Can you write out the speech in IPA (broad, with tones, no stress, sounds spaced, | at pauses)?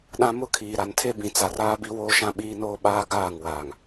ɗ ã˦ m ʊ˦˨ kʰ iː˨ ɾ a˨ n tʰ e˦ b ĩ˨ t͡s a˨ r aː˦ b i˦ w oː˦ ʃ ã˦ ɓ iː˦ n oː˦ ɓ aː˦ ɡ aː˦˨ ŋ w aː˨ ŋ